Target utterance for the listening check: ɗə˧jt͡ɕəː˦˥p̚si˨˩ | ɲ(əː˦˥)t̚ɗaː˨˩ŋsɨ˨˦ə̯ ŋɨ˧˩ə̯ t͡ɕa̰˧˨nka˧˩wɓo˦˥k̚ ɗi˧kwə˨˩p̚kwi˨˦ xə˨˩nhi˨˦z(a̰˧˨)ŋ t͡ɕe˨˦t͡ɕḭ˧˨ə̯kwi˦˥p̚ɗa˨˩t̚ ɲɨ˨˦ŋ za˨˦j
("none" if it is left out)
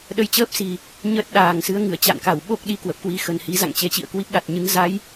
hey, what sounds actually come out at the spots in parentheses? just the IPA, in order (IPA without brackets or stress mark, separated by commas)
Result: əː˦˥, a̰˧˨